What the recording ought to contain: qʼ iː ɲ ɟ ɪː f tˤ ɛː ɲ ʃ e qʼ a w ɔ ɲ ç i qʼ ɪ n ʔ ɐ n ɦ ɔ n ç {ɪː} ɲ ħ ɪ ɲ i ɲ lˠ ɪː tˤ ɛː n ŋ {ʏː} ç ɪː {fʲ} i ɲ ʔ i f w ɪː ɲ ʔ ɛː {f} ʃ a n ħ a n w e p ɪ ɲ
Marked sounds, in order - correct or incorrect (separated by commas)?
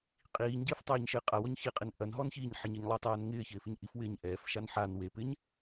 incorrect, incorrect, incorrect, correct